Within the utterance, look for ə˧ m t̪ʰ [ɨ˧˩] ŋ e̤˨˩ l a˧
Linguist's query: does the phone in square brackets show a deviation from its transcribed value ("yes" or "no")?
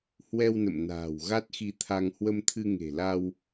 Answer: yes